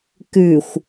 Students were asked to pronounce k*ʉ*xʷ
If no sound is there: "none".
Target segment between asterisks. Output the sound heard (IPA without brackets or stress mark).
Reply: ʉ